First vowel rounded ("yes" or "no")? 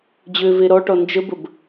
yes